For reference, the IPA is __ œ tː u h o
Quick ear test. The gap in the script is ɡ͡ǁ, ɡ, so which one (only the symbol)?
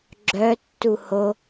ɡ͡ǁ